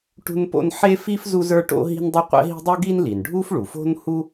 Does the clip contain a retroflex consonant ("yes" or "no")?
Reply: yes